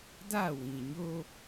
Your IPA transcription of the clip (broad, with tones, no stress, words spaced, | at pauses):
da˦˨wĩ˨ɲo˦